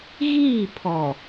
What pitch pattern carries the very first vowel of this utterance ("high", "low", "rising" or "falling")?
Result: falling